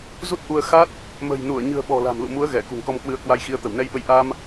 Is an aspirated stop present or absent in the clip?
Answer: absent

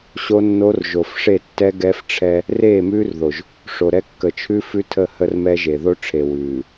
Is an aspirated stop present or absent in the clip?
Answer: present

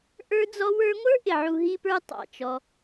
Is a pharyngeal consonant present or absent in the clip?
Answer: present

